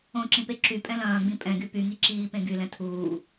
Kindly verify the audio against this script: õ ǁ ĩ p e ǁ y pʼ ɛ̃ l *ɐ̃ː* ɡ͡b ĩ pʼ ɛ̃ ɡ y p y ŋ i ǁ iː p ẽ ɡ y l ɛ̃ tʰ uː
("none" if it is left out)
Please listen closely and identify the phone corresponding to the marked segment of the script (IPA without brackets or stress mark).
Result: ɐ̃ː